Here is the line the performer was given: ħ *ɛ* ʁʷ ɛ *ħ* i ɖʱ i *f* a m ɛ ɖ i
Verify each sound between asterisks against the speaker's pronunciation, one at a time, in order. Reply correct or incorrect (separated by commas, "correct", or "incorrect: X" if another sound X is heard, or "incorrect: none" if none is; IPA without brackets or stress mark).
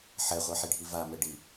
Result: correct, correct, incorrect: v